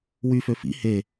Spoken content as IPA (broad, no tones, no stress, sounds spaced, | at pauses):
w y f ø f ḭ h e